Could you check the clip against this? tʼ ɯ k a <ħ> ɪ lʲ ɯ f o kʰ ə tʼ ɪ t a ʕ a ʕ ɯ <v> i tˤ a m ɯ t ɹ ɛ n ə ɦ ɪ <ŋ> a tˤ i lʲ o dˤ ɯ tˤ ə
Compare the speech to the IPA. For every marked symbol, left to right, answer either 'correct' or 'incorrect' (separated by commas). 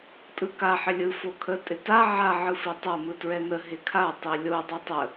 correct, incorrect, incorrect